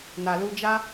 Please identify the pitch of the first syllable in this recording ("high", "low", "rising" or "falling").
low